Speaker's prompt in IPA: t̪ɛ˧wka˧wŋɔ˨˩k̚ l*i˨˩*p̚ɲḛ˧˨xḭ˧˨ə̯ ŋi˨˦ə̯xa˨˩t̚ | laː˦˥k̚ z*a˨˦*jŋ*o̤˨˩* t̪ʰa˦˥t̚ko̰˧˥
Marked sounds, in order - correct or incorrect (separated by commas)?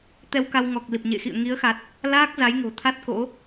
correct, correct, correct